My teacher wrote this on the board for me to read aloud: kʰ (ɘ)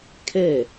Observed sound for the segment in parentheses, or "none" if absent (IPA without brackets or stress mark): ɛ